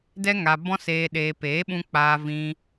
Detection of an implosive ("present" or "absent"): present